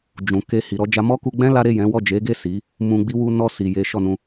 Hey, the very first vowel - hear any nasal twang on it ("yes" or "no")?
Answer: yes